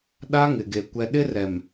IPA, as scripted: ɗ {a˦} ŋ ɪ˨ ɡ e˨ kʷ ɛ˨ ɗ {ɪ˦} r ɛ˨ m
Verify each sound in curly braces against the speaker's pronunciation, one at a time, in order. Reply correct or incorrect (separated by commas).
correct, correct